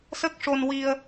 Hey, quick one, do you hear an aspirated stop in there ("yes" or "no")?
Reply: no